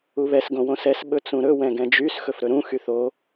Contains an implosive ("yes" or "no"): yes